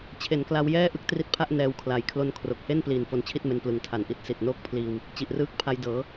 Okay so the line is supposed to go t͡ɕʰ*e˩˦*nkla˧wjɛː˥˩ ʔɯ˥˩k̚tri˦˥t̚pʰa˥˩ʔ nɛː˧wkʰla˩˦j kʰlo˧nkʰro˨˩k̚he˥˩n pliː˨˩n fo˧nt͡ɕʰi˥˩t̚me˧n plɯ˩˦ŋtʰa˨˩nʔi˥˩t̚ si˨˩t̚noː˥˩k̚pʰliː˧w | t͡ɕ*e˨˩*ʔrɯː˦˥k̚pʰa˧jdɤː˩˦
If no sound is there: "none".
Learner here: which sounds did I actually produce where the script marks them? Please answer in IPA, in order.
e˩˦, i˨˩

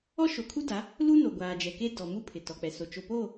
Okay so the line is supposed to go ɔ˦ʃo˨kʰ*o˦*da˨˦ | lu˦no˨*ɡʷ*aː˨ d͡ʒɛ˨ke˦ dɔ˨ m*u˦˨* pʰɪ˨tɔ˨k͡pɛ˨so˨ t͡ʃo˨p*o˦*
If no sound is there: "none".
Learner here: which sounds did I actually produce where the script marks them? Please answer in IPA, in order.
u˦, ɡʷ, u˦, o˦˨

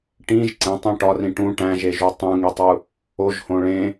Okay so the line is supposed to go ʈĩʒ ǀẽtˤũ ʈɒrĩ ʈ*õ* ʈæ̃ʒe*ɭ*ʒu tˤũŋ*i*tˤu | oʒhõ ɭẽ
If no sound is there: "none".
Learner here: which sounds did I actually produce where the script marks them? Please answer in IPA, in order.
ũ, none, i

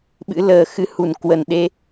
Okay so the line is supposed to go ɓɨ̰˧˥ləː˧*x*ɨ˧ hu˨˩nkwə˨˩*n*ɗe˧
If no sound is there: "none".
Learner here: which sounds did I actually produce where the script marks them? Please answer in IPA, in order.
x, n

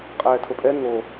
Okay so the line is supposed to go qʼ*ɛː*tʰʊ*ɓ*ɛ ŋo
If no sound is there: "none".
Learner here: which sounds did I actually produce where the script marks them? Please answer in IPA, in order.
ɛː, pʼ

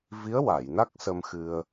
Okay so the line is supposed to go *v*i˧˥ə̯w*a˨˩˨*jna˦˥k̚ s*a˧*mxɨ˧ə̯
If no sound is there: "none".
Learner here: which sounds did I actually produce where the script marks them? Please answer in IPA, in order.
v, a˨˩˨, ə˧

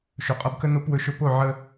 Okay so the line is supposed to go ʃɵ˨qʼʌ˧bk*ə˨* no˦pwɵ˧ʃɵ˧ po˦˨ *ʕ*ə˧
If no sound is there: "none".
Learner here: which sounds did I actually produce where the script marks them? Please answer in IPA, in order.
ə˦, ʕ

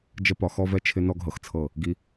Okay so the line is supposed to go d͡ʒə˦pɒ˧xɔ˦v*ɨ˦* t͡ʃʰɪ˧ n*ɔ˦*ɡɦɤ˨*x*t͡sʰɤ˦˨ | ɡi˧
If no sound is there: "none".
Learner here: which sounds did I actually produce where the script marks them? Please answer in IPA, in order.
ɛ˦, ɔ˦, x

